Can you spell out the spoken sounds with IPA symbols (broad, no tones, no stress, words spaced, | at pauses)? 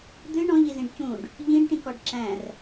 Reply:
d̪ɨ ɳɔ̃ʎizĩɖ cũɖ | ʎĩɖʈĩkɔɖ ǁæ̃r